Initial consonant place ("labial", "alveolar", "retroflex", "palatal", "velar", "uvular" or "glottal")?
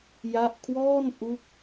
palatal